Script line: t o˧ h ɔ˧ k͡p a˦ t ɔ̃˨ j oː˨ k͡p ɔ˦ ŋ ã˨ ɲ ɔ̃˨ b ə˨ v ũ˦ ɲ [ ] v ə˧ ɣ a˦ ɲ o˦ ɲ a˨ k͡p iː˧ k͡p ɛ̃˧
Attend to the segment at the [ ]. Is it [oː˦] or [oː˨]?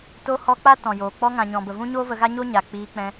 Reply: oː˦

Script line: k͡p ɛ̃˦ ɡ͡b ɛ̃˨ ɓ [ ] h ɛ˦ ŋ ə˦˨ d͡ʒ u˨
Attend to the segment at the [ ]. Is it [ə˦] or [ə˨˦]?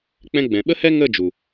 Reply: ə˦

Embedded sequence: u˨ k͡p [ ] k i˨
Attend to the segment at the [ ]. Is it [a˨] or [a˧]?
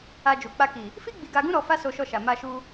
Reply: a˧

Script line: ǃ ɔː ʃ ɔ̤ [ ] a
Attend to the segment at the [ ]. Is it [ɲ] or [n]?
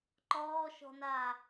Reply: n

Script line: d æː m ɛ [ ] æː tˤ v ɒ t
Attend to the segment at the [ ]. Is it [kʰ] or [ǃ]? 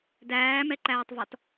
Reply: ǃ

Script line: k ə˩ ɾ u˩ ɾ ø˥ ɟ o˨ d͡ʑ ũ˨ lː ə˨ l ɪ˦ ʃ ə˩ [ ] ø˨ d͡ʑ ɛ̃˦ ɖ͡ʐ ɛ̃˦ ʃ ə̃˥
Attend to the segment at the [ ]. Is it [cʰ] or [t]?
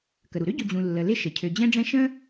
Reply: cʰ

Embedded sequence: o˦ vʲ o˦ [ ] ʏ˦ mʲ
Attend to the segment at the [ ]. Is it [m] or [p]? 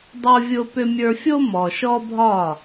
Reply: p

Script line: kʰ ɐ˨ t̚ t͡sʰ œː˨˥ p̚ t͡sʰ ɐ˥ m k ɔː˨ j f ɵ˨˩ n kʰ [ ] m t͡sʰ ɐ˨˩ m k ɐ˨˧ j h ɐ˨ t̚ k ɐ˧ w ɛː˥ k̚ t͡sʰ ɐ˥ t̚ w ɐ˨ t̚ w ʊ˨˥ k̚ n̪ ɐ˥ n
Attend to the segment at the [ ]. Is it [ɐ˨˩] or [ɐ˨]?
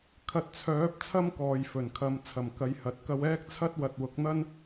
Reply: ɐ˨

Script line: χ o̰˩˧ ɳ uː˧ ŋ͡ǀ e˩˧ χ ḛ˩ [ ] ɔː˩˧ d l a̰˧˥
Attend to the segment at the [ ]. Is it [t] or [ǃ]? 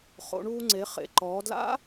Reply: ǃ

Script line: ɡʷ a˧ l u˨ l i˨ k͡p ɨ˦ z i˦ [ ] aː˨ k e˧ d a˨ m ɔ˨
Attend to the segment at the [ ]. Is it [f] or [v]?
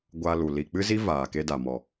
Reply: v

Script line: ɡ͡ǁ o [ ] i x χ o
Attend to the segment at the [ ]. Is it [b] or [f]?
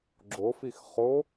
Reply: f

